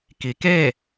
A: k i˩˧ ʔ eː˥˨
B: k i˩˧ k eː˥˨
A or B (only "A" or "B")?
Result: B